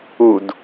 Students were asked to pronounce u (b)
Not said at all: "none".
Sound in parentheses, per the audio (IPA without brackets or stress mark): d